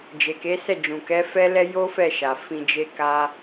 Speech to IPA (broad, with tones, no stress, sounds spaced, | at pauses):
d͡ʒ e˨ k e˨˦ s ɛ˦˨ d͡ʒ ũ˨ k ɛ˨˦ f ɛ˦ l ɛ˦ j o˦ f ɛ˦˨ ʃ a˨ f ĩ˧ d͡ʒ e˦ k a˦